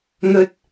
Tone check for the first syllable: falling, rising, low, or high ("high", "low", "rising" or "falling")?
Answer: high